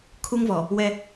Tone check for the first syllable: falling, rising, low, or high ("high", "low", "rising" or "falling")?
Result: high